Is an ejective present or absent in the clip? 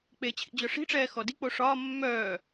absent